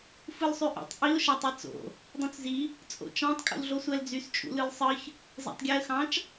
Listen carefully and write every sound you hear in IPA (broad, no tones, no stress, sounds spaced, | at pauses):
f ɯ l sˤ y ʔ o̰ tˤ ʔ i ʊ̯ ʃ æ tˤ i t͡s o̰ | dˤ õ t͡s z i | t͡sʼ o̰ t͡ʃ ɑ̃ tˤ kʼ ṵ l ɮ o sʷ æ l d͡z y s t͡ʃʼ ṵ l ɯ l sˤ ɯ ç | z æ̰ tˤ ɡʲ æ ə̯ x ɑ̃ t͡ʃ